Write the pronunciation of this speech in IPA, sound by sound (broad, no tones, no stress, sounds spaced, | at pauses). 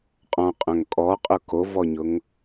qʼ ɔ̃ qʼ œ̃ ŋ kʼ ɔ qʼ ʊ k o v ɔ ɲ ʊ ŋ